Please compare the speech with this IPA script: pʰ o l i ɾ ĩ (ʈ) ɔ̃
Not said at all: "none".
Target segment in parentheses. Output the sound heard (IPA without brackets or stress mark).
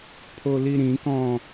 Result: k